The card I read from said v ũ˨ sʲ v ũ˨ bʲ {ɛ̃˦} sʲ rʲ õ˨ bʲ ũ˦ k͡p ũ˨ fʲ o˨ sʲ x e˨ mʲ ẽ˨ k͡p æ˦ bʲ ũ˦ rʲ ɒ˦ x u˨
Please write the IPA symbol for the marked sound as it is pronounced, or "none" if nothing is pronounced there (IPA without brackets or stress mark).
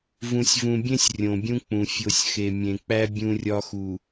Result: ẽ˦